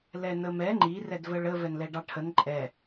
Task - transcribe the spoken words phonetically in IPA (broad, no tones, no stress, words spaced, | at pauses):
lɛnəmɛ ŋ͡ǃi rɛdvəɭə vɛnlɛɖɑʈʰən ǃʼɛ